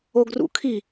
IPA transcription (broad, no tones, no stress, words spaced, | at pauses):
oɡrṵkʰi